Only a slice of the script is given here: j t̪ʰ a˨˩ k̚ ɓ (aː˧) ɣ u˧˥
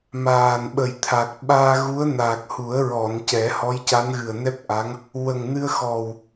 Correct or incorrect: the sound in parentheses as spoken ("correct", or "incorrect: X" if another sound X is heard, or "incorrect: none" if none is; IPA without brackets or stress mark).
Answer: correct